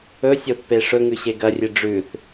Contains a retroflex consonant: yes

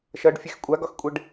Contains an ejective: yes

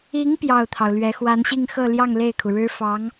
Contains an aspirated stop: yes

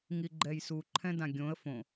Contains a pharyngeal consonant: no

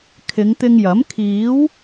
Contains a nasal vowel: no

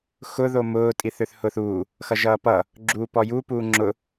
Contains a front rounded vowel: yes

